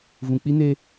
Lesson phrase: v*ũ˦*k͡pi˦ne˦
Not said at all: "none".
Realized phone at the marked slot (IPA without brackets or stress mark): ũ˨